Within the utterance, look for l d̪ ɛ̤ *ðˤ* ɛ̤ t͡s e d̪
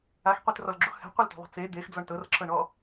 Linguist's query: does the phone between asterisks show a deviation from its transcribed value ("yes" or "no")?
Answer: no